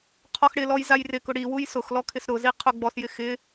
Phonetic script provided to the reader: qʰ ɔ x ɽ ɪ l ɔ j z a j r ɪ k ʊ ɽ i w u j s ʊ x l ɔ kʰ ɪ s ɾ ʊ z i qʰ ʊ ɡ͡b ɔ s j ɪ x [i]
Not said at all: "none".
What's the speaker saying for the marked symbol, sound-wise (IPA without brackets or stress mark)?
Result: ɪ